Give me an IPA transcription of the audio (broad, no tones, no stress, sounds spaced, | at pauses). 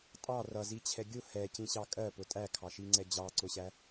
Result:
tʼ ɑ r ʌ z i t͡ɕʰ ɛ ɡʲ ʊ h ɛ c ĩ ɕ ɑ kʼ ɜ p ʊ tʼ æ kʰ ɑ ʃ i ŋ͡ǀ ɛ d͡ʑ ɑ ǀ ʊ ɕ æ